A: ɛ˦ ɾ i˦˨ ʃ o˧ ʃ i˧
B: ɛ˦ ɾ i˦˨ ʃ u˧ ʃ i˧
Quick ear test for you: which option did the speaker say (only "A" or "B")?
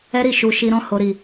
B